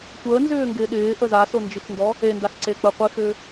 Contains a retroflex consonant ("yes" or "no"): no